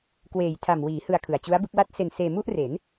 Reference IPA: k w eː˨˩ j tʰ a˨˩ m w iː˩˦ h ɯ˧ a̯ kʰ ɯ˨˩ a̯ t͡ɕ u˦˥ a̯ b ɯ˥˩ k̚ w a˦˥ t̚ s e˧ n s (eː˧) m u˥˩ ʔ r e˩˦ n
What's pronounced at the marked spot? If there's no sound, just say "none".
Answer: eː˧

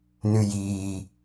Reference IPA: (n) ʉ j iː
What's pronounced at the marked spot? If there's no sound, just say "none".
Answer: n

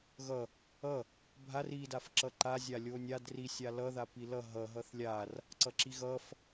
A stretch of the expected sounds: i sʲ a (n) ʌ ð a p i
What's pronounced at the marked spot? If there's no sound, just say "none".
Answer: l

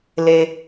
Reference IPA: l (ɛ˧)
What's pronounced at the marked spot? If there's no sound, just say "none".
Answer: e˧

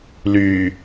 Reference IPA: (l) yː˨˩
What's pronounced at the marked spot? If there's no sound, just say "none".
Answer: l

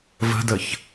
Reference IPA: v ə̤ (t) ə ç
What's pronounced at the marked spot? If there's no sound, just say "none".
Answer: d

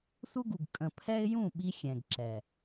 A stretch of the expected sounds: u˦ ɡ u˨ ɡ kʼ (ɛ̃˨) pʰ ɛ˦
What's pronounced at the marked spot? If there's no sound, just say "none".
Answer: ə̃˨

